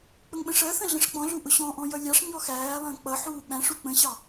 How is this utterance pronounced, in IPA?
k͡pəŋɓə̃ʂɜθə̃ ɮə̃ʂk͡pɔ̃ɮu ʔʊɕɔ̃ʔɔ̃ jʌlʲɑʂɲɔ xæːlˠə̃ː k͡pʌħuː ɓæ̃ʂu k͡pə̃ɕɑ

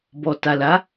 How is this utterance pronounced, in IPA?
bɔ˨ta˨la˨˦

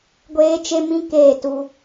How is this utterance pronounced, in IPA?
ɡʷeː˦t͡ʃe˦mĩ˦ keː˦˨tu˦

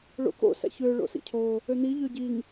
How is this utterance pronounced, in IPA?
ɭo̰k o̰sæ̰ç ø ɭo̰sḭcʰo | øn̪i ʎøɟiŋ

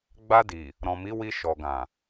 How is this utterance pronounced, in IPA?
ɡ͡ba˧di˨ | ɾɔ̃˨mi˨˦ wi˧ʃɔ˨ɡã˨

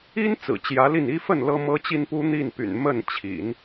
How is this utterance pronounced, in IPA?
i˥n t͡sɹ̩˨˩t͡ɕjä˧˥li˥˩ni˥ fə˥˩n lɤ˥mɤ˥t͡ɕi˥npu˥ n̪i˥˩npy̰˨˩n mə˥˩nt͡ɕʰḭ˨˩˦n

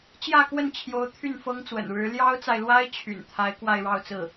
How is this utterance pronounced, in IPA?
t͡ɕjä˥˧kwə˥˩nt͡ɕʰjo˧˥ʊ̯ t̪ʰy˥˩nfɤ˥ŋt͡swə̰˨˩n ɻɻ̩˧˥ ljɑ˥ʊ̯t͡sa˨ɪ̯lwa˥ɪ̯ t͡ɕʰy̰˨˩n t̪ʰa˧˥ɪ̯kwa˥˧ɪ̯ɻɑ˥˧ʊ̯t͡sɹ̩˥˩

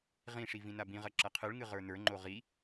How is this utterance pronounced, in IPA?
ʁĩʂi vĩnabĩʁɐ ǁɐqʰɨɭŋɨ ʁə˞nə˞ŋ͡ǃo ʁi

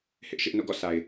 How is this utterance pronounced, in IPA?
hɪ˦ʔ ʃɪ˦ʔ no̰˦˨ɡɔ̰˦˨ sʰa˨ɪ̯

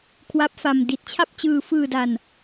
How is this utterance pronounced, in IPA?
kʰwa˦˥p̚fa˧m di˨˩t̚t͡ɕʰa˥˩p̚t͡ɕɯː˧ fɯː˧da˧n

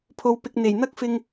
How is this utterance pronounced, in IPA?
pʰo˨wpɪ˨k̚n̪e˨˩j n̪ɐ˥k̚fɪ˧ŋ

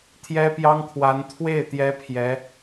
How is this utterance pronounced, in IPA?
t̪ʰjɛ˥pjɑ˥ŋkʰwa˧˥n t̪ʰwe˥˩ɪ̯ t̪jɛ˥pʰjɛ˧˥

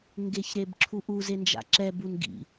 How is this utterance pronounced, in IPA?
ŋɡeçɾebǁʰuʔu zend͡ʒa̰ǁɛ bunɡḭ

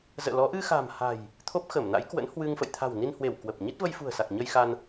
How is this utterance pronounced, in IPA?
zə̰ː˧˨lɔ˨˦ ʔɨ˧xa̤˨˩m ha̤˨˩j | t̪ʰo˦˥p̚xə˧˩mna̰˧˥jkwə̰˧˥n hwɨ˧ŋfə̰˧˨j t̪ʰa̤˨˩wni˧nhwe˧˩w kwə˨˩p̚ɲi˦˥t̚ və˧jfṳ˨˩ə̯sa˨˩k̚ ɲə˧jxa˧n

